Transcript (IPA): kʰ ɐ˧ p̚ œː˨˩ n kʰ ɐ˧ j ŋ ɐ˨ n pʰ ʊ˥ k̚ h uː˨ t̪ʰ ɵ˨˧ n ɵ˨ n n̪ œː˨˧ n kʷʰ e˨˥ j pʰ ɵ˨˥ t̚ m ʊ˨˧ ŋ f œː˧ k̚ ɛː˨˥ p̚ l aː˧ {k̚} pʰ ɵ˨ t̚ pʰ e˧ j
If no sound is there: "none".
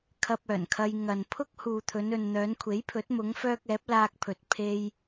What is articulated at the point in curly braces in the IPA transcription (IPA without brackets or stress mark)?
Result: k̚